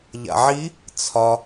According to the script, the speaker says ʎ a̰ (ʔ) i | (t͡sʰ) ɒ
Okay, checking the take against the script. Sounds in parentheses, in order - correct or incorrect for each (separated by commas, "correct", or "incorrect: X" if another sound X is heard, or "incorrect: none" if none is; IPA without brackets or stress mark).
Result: incorrect: ʕ, correct